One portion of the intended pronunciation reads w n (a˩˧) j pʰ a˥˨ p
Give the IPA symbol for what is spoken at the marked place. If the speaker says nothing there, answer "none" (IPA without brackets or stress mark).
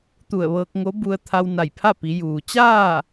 a˧˩